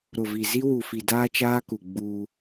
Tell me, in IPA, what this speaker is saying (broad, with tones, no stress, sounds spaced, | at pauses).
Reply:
ɾ ʊ˨ v i˨ z i˦ w u˨ f i˨ d aː˦ t͡ʃ aː˦ k u˨ ɡ͡b uː˦